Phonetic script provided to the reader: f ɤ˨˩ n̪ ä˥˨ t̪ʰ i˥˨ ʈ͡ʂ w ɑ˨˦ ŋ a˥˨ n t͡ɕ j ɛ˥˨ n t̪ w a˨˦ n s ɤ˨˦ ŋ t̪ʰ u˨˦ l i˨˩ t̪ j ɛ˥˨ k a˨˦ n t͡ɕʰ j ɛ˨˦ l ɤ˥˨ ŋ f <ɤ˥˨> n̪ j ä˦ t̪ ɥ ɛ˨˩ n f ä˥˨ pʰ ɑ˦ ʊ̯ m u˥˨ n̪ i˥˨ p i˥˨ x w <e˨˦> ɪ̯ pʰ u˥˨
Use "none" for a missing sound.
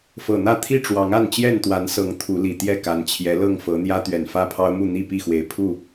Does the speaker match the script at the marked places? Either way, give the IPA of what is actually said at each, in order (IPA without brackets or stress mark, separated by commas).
ɤ˨˦, e˨˦